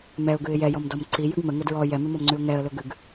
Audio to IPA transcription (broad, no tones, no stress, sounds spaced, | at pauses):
m ɛ ʊ̯ ɡ ʉ ɪ̯ j ɛ j ɔ m d ɔ m ǀ i j ʉ ɡ m ə ŋ ʊ d ɹ ɔ j ɛ m ʉ m ɔ m ŋ͡ǀ ʉ ʊ̯ ŋ ɛ ə̯ l ʊ ɡ ʉ ɡ